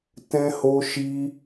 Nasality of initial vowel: nasal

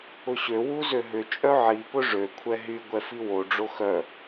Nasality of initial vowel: oral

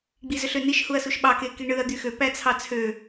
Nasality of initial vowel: oral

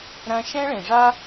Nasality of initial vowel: nasal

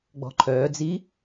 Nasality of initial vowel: oral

